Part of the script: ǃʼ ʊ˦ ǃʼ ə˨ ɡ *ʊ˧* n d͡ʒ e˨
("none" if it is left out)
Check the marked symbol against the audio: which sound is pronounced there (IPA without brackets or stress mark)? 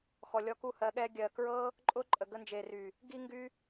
ə˧